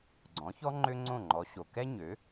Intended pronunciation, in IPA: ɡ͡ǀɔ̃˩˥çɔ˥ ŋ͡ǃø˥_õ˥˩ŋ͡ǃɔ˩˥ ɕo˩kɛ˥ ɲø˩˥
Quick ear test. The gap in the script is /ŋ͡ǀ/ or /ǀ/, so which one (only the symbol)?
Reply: ŋ͡ǀ